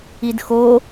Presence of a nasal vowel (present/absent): absent